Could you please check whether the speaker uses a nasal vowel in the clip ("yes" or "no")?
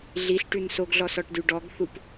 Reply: no